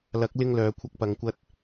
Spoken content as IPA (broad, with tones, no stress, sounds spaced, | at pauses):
l ɐ˨˥ k̚ l ɪ˧ ŋ l œː˨˥ kʷʰ ɐ˧ k̚ p ɐ˨˧ ŋ kʷ ɐ˥ t̚